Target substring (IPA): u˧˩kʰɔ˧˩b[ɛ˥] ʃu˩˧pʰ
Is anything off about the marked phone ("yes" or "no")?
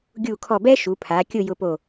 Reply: no